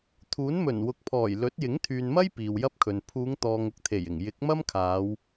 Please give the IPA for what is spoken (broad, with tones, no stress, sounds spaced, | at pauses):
t̪ʰ uː˨˥ n m ɵ˨˩ n w ʊ˨ k̚ pʰ ɔː˨˩ j l ɵ˨˥ t̚ j ɪ˨˥ ŋ t̪ʰ yː˨ n m ɐ˥ j p iː˨ w j ɐ˥ p̚ kʰ ɵ˨ n pʰ uː˨˧ ŋ t̪ ɔː˨ ŋ ʊ˧ k̚ t̪ʰ e˨˩ j ɪ˨˩ ŋ j ɪ˨˥ k̚ m ɐ˥ m kʰ aː˨˧ w